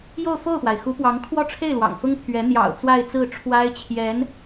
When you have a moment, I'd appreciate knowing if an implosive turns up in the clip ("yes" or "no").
no